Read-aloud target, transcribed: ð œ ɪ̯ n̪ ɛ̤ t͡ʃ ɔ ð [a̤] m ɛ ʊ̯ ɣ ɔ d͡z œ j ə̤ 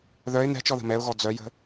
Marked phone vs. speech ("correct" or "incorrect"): incorrect